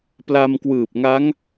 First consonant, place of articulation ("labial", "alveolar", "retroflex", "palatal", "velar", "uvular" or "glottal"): labial